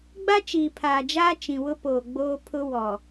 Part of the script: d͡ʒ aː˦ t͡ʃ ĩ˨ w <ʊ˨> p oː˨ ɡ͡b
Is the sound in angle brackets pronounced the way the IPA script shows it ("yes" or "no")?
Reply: no